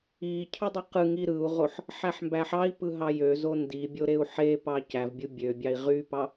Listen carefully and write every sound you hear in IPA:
i cʰ ɯ dˤ y q ɯ ŋ i ɾ ɯ u̯ ʁ o ħ | ħ æ ħ m b æ ħ ɑ i̯ p ɯ ɦ ɑ j ø z o n d i bʲ o ɾ e u̯ ħ e p ɑ c æ v bʲ u bʲ ø bʲ ɑ i̯ ʁ y p ɑ

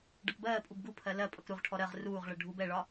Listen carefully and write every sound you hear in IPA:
ɖ ʌ k b ɜː pʼ u b ɡ u pʰ ɜ l ɜ pʼ ʌ k ɾ u ʁ ʈʰ ɔ ɾ ɜ ʁ r uː ʁ ɭ ɜ ɖʱ u b ɛ ɭ ɒ

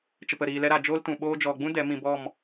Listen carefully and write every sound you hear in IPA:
t͡ʃ ə˨ p ə˨ ɾ iː˨ l ɛ˧ ɾ a˨ d͡ʒ oː˦ l t ũ˨ ɓ oː˦ d͡ʒ ɔ˨ ɡ͡b ũ˦ d ɛ˨˦ m ĩ˧ b ɔ˦˨ m

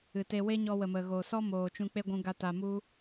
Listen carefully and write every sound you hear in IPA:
ɨ˨ t e˧ w e˦ ɲ ɔ˧ w ə˨ m ə˨ ɣ o˨ s ɔ˦ m oː˨ t͡ʃ ũ˧ k͡p e˦ ɡʷ ũ˧ ɡ a˧ t a˨ m u˦

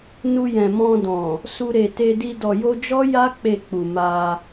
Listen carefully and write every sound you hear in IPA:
n u˧ j ɛ̃˨ m ɔ̃˧ d ɔ̃˨ | s u˧ ɾ e˨ t e˧ d i˧ d ɔ˨ j o˧ d͡ʒ ɔ˦ j a˦ k͡p e˦˨ k͡p u˨ m a˧

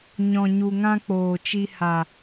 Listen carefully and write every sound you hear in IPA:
ɲ ɔ̃˨ ɲ u˨ ŋ ã˧ k͡p oː˨ t͡ʃ i˧ h a˨

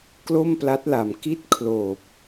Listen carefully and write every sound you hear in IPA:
k l o˥˩ m p l a˦˥ t̚ l a˨˩ m k i˥˩ t̚ kʰ l oː˨˩ p̚

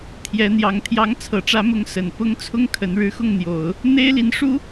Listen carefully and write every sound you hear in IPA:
t̪ʰ j ɛ˧˥ n̪ j ɑ˧˥ ŋ t̪ʰ j ɑ˧˥ ŋ t͡sʰ ɤ˨˩ ʈ͡ʂ ä˧˥ m ʊ˧˥ ŋ s ə˨˩ n p ʊ˥ ŋ t͡sʰ ʊ˥ ŋ kʰ ə˧˥ n ɻ ɻ̩˥ x ʊ˥˩ ŋ n̪ j o˨˩˦ ʊ̯ | n̪ e˥ ɪ̯ l i˧˥ n ʂ u˥

